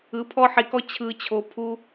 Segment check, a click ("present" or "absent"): absent